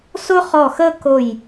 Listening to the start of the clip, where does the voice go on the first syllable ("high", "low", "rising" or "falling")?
high